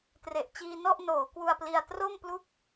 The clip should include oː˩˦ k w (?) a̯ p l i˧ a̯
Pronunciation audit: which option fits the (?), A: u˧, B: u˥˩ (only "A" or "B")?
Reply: A